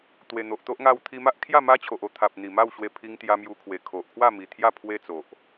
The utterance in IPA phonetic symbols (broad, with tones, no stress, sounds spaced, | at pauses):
t̪ w e˨˩ n̪ o˨ ʔ t̪ o˦ ʔ ŋ a˧ w t̪ʰ i˧ m a˦ ʔ kʰ j a˥˧ m a˦ t͡ɕʰ o˨ ʔ o˧ t̪ʰ a˨ p̚ n̪ i˨˩ m a˥˧ w ɕ w e˧ pʰ i˧ ŋ t̪ j a˧ m j u˧ kʰ w e˨˩ kʰ o˨ ʔ kʰ w a˥˧ m i˨˩ t̪ʰ j a˥˧ pʰ w e˦ t͡s o˨ ʔ